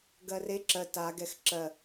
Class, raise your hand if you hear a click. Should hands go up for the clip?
yes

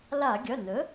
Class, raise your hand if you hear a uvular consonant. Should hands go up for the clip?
no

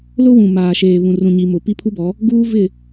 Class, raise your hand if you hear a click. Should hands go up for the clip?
no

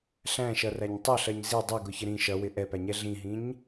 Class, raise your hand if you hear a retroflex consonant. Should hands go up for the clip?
no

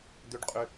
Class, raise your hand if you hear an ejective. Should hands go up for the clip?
yes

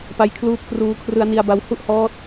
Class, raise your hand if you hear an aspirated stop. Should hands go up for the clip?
yes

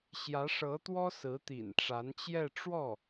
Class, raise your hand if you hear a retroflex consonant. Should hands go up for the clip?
yes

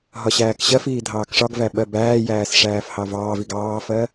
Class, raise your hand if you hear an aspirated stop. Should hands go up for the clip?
no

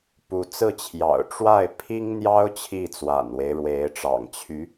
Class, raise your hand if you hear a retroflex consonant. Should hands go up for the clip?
yes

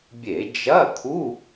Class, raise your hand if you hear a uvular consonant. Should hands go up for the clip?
no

